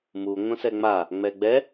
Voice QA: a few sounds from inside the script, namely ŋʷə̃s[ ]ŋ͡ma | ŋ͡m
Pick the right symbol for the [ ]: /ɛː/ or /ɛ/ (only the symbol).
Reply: ɛ